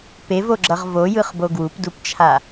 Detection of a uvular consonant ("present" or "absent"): present